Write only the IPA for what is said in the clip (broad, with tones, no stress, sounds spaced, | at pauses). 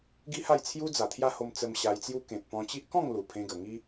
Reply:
ɡ i˦ h a˥˧ j t͡sʰ j u˦ d͡z a˨˩ t̪ʰ j a˦ h o˧ m t͡s ə˧ m ɕ a˧ j t͡s j u˦ k ẽ˨ t̚ p ɔ̃˧ t͡ɕ i˦ ʔ k ɔ̃˥˧ ŋ l u˨˩ pʰ ẽ˧ ɡ ə˨˩ ŋ i˦